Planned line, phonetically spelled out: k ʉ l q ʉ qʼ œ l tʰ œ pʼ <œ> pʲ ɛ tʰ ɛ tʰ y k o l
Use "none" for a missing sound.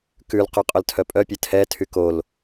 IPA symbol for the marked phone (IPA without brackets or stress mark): œ